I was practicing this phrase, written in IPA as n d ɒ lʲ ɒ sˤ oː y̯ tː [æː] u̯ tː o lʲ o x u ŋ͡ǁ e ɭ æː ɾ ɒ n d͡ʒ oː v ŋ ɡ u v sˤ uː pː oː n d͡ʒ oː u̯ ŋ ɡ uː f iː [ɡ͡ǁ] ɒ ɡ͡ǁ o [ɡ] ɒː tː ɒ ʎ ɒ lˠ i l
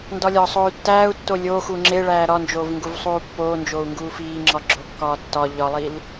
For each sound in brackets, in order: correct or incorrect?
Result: correct, incorrect: ŋ͡ǁ, incorrect: kː

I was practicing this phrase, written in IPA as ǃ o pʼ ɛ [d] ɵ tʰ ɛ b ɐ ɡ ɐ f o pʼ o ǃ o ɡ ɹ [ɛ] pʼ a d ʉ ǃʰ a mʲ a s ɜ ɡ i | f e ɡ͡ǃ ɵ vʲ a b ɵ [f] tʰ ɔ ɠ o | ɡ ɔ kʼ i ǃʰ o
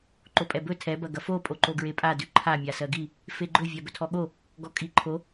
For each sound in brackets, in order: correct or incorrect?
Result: incorrect: b, incorrect: e, incorrect: none

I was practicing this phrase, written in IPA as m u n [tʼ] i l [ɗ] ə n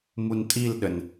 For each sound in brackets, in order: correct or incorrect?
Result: correct, correct

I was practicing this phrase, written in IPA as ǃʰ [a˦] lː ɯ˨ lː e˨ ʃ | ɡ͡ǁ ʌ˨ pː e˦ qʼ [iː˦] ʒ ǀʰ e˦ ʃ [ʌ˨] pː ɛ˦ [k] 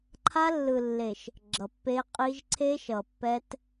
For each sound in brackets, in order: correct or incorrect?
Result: correct, incorrect: i˦, correct, incorrect: t

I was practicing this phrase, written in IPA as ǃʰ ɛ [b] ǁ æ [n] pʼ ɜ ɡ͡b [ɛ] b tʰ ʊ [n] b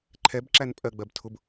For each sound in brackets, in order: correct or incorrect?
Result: correct, correct, incorrect: ɜ, incorrect: none

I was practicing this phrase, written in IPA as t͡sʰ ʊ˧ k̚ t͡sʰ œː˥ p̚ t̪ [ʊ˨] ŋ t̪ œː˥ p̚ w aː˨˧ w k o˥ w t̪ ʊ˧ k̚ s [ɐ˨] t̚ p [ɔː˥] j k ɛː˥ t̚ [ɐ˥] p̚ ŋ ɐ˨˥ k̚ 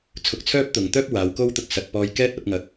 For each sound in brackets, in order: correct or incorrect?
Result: correct, correct, incorrect: ɔː˧, incorrect: ɐ˧

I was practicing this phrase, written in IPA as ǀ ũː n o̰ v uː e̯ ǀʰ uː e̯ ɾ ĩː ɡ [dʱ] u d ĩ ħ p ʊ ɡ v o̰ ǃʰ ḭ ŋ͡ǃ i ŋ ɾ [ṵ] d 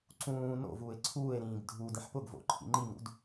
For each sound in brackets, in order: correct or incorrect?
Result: correct, correct

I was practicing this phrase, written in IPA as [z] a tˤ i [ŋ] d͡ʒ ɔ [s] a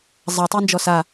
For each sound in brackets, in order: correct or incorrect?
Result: incorrect: zˤ, incorrect: n, correct

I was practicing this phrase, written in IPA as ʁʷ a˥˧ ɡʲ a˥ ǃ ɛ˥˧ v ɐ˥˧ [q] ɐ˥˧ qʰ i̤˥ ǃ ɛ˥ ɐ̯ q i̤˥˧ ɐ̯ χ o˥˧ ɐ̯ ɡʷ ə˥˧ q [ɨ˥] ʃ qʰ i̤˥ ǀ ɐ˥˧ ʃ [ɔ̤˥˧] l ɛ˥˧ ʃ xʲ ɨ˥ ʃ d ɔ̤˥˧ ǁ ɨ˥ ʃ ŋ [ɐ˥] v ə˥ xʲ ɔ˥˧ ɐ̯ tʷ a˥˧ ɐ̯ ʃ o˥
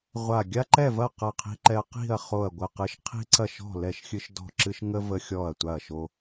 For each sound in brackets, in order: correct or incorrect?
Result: correct, correct, correct, incorrect: ə˥

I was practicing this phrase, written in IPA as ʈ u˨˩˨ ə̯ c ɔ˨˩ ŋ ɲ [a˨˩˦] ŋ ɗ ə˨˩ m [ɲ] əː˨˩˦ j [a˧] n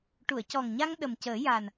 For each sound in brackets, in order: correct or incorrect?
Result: incorrect: a˧, incorrect: c, incorrect: a˨˩

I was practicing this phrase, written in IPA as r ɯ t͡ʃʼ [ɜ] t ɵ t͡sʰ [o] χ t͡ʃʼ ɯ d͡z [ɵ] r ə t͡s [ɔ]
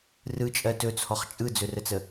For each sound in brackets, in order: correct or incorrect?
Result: correct, incorrect: ɔ, correct, incorrect: ə

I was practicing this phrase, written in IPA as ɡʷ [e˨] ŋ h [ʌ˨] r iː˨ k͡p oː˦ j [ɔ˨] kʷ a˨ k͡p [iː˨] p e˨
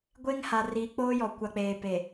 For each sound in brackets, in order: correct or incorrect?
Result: incorrect: e˦, incorrect: a˨, correct, incorrect: eː˨

